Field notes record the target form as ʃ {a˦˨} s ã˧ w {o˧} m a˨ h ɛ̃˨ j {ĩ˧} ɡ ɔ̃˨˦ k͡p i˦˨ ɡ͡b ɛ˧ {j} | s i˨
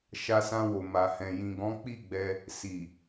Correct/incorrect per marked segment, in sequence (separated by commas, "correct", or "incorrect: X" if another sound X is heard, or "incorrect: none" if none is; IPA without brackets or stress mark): incorrect: a˧, incorrect: o˨, incorrect: ĩ˨, incorrect: none